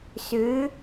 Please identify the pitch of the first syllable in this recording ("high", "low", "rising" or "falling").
rising